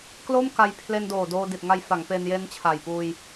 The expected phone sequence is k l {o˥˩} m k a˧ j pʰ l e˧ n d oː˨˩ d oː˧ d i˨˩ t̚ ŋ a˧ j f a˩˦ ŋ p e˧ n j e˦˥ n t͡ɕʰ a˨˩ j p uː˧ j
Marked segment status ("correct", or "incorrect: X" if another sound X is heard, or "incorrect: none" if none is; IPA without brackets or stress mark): correct